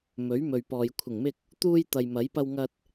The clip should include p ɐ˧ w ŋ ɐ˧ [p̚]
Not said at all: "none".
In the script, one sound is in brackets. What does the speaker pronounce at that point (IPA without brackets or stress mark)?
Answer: t̚